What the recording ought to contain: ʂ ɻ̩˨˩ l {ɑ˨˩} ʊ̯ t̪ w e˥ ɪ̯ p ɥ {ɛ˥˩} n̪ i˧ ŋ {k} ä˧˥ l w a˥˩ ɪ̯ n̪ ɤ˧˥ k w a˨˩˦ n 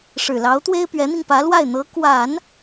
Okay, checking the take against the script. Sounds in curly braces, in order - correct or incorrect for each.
incorrect: ɑ˧˥, incorrect: ɛ˧˥, incorrect: p

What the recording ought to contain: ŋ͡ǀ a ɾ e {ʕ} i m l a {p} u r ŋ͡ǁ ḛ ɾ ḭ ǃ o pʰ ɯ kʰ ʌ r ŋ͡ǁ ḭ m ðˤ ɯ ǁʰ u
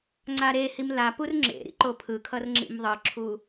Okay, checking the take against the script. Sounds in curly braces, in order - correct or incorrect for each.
incorrect: h, correct

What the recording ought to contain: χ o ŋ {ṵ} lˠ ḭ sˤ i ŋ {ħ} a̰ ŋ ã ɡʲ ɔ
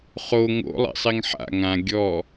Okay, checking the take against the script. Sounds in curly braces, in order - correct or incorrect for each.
incorrect: o̰, correct

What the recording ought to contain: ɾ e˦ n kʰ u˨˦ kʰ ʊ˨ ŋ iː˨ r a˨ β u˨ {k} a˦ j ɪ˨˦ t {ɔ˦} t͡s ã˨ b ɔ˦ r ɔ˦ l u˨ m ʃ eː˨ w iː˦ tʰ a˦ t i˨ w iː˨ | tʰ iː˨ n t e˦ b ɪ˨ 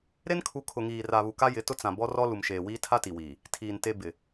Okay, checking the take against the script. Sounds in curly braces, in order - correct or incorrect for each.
correct, incorrect: ʊ˦

